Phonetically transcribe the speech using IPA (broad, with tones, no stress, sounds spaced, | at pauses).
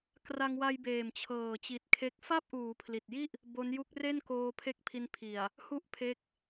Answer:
k r a˧ ŋ w a˧ j b eː˨˩ m t͡ɕʰ ɤː˨˩ t͡ɕ i˨˩ t̚ kʰ e˦˥ k̚ f a˥˩ p̚ ʔ uː˩˦ pʰ l i˨˩ t̚ j i˥˩ ʔ | b o˦˥ n j u˦˥ k̚ r e˥˩ n k oː˧ pʰ e˦˥ k̚ pʰ i˧ n pʰ i˨˩ a̯ | h u˥˩ ʔ pʰ e˦˥ k̚